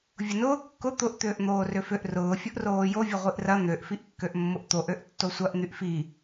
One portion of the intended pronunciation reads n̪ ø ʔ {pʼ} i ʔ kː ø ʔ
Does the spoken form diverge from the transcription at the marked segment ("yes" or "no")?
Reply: yes